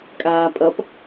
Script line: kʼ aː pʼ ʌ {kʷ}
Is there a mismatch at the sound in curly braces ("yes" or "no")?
yes